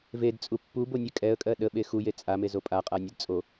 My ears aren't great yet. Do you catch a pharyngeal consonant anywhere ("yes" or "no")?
no